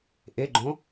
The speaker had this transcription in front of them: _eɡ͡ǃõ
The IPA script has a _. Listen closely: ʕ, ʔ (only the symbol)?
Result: ʔ